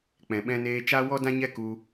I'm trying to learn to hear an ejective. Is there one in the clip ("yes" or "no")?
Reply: no